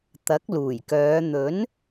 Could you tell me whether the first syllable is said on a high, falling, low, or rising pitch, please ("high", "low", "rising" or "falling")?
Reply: rising